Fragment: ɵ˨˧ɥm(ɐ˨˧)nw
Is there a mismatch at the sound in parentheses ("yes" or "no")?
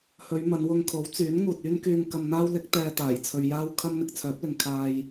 no